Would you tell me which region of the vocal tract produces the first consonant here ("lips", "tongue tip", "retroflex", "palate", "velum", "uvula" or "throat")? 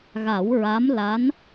velum